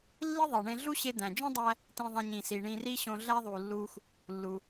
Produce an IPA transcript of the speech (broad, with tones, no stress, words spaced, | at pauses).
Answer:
lːi˥ðˤi˩ɳẽ˧ɮu˥ ɕe˧d̪æ̃˩d͡ʒõ˥dˤæ˧ | tĩ˧ðˤæ̃˧ɲ ĩ˩si˩ ɳĩ˧ri˥ ɕõ˧ɮæ˥ðˤu˩lːu˧x | lːu˩